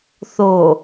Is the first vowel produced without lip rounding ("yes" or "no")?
no